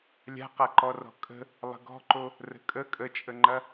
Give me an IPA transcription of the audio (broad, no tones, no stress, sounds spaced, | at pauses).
lʲ a̤ q a ǃ ɔ r ɔ̤ kʼ ə̤ | lˠ ə̤ ɡ ɔ̤ ǃ o | r ə̤ kʼ ə kʼ ə t͡ʃʼ ə ŋ͡ǃ ɐ